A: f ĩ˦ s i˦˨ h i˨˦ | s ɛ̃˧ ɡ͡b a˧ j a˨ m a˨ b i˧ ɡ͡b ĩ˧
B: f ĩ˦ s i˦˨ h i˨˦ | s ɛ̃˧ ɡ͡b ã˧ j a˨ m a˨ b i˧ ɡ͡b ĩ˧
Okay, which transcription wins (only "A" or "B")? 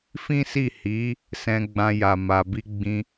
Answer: B